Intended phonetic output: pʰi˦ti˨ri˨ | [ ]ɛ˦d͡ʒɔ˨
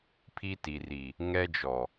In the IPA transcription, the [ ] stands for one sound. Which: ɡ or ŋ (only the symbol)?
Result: ŋ